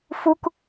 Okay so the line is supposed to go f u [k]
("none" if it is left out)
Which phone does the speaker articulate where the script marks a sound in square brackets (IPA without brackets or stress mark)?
k